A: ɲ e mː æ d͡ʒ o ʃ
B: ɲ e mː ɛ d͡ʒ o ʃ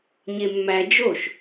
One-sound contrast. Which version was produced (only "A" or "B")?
A